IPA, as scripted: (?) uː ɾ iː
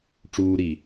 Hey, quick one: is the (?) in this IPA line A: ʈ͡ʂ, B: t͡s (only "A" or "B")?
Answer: A